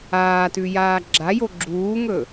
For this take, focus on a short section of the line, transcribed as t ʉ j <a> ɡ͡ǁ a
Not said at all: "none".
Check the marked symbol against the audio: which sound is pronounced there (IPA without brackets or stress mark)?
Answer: aː